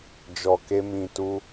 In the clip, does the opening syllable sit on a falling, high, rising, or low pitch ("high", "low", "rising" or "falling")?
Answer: low